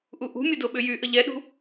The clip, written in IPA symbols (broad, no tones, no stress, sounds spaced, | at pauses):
ʔ u ʔ ṳ mʲ ə d o ɓ ʏ j y ʔ ə ʎ ɛ ɗ ṳ